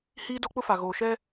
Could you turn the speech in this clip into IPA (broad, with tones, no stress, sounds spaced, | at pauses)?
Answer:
h iː˦ d o˦ k͡p ʊ˦ f a˨ ɣ oː˨ ʃ ɛ˦